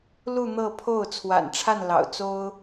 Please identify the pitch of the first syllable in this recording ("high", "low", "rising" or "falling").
falling